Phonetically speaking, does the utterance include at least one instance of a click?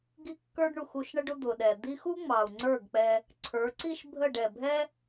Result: yes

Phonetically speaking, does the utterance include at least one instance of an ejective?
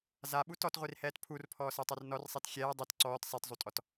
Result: yes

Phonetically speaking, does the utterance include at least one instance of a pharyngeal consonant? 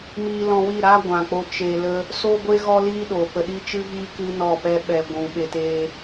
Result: no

